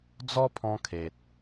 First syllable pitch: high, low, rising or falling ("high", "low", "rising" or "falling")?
high